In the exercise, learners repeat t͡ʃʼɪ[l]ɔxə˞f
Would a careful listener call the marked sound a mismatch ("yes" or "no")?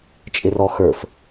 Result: yes